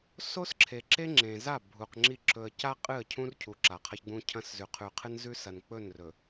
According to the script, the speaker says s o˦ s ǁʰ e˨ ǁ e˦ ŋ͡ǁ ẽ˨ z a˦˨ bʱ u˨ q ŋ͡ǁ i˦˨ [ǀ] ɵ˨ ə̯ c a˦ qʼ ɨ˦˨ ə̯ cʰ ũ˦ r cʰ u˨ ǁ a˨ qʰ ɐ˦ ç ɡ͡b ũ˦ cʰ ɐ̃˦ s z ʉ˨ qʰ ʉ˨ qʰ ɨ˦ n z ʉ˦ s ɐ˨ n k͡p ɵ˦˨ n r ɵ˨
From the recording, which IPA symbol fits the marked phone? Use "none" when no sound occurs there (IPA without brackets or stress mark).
ǁ